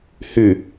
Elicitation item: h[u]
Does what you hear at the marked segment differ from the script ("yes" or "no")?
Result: yes